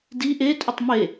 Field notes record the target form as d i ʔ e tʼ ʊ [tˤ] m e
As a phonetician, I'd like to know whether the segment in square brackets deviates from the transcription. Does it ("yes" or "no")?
no